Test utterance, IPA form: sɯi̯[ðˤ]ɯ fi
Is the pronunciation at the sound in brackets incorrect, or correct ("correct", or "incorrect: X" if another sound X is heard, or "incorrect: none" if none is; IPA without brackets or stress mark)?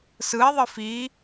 correct